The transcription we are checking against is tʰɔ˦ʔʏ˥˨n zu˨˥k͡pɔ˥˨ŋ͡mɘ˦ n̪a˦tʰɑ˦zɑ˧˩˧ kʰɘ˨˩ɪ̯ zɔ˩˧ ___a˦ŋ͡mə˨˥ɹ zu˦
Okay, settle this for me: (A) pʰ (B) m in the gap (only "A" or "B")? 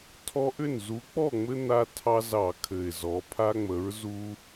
A